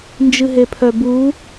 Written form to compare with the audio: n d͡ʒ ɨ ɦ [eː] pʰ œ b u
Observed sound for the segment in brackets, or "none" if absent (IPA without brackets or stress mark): e